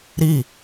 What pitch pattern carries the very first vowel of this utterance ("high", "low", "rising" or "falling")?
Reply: falling